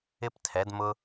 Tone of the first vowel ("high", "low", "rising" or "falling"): high